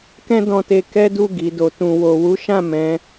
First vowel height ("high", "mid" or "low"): mid